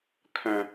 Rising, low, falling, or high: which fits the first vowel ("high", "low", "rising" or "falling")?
low